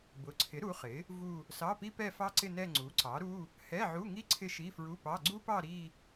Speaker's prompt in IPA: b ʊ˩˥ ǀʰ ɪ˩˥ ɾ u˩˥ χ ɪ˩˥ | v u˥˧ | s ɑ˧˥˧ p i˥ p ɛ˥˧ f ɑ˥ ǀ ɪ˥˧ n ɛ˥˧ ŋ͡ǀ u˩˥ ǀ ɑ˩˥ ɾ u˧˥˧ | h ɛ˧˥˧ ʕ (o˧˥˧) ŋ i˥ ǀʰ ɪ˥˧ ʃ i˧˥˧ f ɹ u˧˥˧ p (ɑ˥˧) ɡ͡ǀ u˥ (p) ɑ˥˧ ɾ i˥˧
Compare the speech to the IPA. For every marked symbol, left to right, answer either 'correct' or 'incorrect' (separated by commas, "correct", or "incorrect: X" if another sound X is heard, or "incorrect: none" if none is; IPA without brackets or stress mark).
incorrect: u˧˥˧, incorrect: ɑ˧˥˧, correct